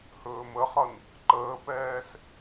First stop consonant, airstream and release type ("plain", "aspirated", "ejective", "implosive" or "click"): click